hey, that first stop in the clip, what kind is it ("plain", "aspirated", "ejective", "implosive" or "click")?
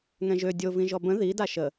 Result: plain